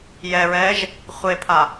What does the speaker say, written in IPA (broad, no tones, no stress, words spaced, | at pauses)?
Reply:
jɛɹɛːʒ | χʷepʰa